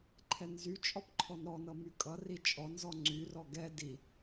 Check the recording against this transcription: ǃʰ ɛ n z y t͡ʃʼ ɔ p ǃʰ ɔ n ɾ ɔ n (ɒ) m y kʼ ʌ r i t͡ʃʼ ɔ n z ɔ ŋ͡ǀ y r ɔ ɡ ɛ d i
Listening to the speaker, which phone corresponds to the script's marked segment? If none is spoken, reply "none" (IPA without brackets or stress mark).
ʌ